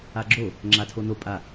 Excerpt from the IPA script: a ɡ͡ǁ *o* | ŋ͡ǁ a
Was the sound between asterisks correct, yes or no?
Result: yes